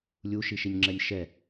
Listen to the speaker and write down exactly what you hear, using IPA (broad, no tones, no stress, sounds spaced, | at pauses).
lʲ u ʃ i ʃ i nʲ ŋ͡ǁ ɛ nʲ ʃ ɛ